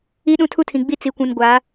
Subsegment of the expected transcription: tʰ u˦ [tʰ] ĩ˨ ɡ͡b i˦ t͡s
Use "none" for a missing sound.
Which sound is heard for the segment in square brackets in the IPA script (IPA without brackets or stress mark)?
tʰ